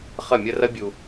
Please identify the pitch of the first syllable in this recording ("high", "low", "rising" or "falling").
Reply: falling